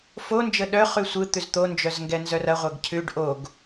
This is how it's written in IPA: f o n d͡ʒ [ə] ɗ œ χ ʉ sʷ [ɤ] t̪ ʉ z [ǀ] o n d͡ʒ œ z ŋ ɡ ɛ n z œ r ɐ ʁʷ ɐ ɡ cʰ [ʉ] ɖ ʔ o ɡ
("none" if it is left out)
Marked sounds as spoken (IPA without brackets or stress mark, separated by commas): ə, ɯ, t̪, ʉ